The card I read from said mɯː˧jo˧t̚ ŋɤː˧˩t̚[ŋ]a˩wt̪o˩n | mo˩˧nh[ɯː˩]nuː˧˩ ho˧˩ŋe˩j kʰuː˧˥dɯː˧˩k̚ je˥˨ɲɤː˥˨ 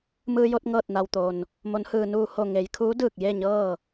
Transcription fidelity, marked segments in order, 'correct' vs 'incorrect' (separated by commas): incorrect, correct